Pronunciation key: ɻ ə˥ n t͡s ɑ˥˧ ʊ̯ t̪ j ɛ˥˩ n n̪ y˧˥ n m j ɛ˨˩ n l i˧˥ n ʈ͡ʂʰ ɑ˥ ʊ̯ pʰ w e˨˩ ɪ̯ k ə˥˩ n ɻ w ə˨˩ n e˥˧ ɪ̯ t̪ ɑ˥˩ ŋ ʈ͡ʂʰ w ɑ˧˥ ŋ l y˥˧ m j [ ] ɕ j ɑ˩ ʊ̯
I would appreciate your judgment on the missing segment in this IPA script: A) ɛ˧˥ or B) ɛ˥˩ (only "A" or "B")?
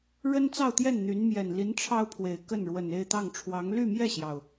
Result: B